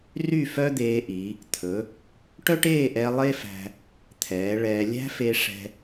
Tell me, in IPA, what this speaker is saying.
ry˥˧fœ˥d̪eː˧ʔi˩˧ | t̪ʰɵ˩˧ | ʈœ˥ʈeː˥˧ʔɛ˧ lˠe˥fæ̤˧ | t̪ʰɛː˩˧ ɭɛː˧ lʲæ̤˥fe˧ʂɛ̤˧

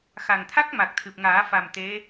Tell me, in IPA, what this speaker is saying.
xa˨˩ŋt̪ʰa˦˥k̚ ma˨˩k̚t̪ʰɨ˨˩p̚ŋaː˨˩˦fa˨˩m t̪e˧˥

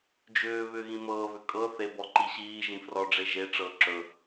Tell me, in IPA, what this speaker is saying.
d͡ʒʏː βʏːɣĩmɤːβʏ kʼɤ θebɔ ǃiɕiːʒĩ frɔɖ͡ʐe ʒeʈ͡ʂɤː ǁɵ

